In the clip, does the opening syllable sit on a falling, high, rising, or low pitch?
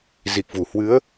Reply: low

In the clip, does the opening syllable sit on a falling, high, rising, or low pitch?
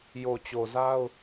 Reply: low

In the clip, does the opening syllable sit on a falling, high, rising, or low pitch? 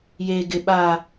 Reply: high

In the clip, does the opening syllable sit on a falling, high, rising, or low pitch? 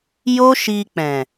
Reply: high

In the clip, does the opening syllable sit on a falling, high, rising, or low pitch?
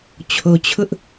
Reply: low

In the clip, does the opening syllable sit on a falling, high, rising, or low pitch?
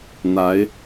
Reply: rising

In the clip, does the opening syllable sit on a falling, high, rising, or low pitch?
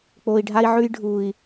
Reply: low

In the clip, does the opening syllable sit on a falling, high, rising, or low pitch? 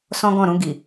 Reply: high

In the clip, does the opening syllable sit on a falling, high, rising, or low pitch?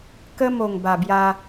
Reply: high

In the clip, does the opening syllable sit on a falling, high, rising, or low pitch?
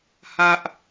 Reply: high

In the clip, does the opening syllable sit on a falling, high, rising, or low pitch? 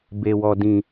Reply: low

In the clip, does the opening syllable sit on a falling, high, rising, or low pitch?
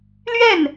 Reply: falling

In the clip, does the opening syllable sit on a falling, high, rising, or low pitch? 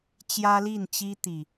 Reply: high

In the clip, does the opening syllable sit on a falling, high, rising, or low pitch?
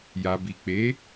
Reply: low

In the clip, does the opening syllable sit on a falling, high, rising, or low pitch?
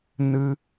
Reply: high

